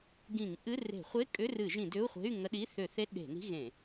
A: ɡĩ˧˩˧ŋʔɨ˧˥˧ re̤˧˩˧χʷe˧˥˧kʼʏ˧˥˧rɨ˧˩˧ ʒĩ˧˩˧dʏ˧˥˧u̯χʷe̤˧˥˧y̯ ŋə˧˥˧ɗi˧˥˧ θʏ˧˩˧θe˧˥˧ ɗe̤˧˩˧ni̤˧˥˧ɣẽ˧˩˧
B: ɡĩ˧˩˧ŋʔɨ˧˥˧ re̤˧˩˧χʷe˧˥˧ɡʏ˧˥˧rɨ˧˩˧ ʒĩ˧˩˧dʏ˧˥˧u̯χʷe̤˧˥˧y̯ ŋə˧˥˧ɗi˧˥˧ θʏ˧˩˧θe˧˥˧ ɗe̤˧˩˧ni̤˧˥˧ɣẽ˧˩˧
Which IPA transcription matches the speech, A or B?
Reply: A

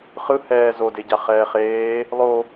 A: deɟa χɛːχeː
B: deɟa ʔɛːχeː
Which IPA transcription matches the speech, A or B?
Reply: A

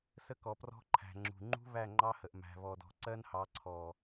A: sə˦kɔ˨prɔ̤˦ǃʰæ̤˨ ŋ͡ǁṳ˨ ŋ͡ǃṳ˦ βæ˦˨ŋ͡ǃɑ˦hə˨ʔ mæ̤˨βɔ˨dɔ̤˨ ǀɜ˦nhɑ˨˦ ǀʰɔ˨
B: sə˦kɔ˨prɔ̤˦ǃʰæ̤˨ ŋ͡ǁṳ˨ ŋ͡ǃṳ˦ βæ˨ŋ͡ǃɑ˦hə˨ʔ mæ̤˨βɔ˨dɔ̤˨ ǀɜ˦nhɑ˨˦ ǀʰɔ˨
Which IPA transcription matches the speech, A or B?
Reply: A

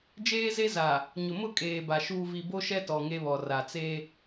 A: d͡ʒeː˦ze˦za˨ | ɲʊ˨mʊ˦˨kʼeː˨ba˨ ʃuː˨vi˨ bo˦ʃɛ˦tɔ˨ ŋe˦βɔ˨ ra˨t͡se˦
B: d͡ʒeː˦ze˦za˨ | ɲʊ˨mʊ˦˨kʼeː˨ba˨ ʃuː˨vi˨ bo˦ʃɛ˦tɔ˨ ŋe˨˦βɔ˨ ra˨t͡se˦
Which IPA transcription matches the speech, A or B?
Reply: A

